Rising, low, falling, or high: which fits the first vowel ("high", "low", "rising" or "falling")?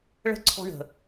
high